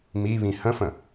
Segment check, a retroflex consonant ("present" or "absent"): absent